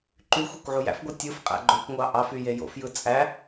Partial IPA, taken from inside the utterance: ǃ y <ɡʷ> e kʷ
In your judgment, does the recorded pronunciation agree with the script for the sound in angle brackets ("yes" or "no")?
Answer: no